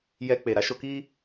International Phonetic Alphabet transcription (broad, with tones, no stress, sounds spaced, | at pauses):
j ɛ˧ k͡p e˨ ɾ a˨˦ ʃ o˧ k i˦